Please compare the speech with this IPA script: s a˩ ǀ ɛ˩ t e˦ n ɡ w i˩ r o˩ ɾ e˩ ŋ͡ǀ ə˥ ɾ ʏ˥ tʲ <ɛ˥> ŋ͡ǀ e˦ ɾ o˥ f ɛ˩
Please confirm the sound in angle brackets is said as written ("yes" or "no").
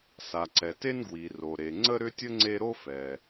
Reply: no